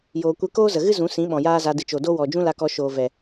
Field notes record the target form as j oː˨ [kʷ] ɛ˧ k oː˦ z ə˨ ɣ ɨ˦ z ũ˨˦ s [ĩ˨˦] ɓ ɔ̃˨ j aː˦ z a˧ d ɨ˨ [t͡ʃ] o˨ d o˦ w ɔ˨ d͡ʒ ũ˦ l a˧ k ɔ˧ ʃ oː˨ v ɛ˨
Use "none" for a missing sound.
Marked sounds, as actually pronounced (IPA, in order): kʷ, ĩ˨˦, t͡ʃ

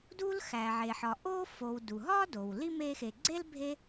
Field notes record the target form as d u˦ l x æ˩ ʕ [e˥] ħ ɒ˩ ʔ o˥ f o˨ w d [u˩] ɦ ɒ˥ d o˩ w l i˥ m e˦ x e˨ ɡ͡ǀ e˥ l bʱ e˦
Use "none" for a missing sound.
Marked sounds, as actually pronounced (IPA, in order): e˩, u˩

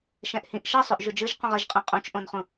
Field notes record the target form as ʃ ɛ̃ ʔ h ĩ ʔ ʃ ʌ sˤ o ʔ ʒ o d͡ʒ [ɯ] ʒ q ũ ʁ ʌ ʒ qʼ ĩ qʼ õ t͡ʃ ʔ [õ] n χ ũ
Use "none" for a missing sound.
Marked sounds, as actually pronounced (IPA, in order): ɯ, õ

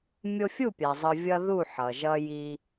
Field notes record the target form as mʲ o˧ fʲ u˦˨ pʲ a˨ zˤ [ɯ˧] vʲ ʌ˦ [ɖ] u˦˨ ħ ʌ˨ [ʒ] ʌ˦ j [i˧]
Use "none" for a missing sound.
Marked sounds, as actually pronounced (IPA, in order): ɯ˧, ð, ʒ, i˧

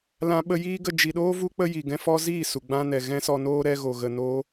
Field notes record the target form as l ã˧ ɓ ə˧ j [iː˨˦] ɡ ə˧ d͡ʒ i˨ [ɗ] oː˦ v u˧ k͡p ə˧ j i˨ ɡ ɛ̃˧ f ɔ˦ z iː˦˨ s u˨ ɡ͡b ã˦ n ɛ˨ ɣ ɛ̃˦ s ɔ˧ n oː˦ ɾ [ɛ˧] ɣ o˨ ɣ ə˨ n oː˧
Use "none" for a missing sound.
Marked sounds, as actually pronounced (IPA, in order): iː˦, ɗ, ɛ˧

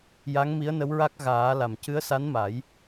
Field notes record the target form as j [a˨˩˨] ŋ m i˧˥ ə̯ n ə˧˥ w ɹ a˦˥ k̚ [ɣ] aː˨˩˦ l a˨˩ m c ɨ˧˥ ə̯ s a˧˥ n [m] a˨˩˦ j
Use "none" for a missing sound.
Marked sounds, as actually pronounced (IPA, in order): a˧˥, ɣ, m

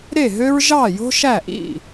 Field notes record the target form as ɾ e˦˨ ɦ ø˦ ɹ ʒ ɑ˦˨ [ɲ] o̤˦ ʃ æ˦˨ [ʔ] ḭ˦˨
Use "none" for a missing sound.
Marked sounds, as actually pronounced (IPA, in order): j, ʔ

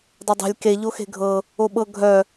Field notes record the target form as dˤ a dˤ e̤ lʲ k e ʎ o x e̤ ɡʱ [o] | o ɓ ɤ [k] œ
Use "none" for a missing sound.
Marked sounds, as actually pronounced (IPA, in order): ɤ, ɡʱ

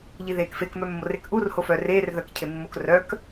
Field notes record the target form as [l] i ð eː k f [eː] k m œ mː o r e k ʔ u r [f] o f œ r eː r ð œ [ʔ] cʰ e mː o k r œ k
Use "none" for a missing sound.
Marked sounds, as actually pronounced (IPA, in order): ʎ, e, h, k

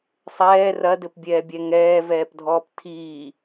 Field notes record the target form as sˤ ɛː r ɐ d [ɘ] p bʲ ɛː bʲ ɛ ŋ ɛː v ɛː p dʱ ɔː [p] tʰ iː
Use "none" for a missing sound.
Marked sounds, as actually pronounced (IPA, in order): ɘ, p

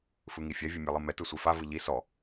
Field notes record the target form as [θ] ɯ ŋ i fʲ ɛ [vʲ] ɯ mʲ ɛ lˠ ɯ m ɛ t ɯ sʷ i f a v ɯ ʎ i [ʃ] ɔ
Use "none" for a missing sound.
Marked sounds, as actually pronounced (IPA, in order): f, vʲ, s

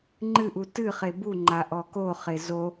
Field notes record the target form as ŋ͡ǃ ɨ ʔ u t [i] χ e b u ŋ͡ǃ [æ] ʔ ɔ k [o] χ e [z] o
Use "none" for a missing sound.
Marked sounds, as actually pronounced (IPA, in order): ɨ, a, o, z

